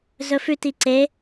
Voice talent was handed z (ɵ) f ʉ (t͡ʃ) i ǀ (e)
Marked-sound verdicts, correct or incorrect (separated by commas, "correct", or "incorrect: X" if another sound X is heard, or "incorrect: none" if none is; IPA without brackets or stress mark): correct, incorrect: t, correct